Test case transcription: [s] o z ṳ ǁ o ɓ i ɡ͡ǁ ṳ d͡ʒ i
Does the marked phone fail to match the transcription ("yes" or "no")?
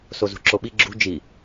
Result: no